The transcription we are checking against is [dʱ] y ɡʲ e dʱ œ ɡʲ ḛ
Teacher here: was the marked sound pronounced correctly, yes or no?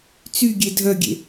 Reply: no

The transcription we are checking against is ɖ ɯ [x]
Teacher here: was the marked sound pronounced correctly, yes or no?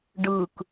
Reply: no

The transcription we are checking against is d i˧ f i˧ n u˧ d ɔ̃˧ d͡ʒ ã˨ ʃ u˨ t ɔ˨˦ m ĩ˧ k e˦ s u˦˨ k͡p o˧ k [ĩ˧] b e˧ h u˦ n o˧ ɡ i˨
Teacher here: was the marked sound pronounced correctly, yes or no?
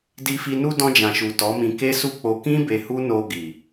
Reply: no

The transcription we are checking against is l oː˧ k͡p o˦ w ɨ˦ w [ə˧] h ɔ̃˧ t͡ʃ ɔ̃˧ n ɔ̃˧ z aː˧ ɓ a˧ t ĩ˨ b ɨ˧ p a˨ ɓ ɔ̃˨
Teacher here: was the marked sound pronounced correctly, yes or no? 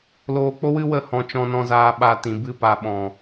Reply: no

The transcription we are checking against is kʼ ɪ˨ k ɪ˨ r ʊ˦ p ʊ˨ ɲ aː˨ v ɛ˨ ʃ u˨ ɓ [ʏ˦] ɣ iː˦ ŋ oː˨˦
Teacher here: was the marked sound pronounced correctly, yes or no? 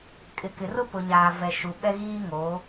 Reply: no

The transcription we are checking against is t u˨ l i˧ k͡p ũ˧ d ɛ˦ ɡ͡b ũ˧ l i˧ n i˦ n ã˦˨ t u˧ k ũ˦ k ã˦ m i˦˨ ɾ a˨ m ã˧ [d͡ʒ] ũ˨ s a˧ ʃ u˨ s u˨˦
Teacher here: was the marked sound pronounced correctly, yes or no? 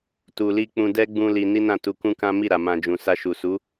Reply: yes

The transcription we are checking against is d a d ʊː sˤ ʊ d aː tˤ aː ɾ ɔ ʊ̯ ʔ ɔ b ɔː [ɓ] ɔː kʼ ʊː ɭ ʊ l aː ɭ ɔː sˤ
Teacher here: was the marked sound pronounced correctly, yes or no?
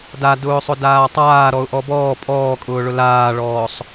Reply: no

